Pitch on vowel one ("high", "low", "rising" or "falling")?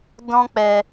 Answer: high